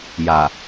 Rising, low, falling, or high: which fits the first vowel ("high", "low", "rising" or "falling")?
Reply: low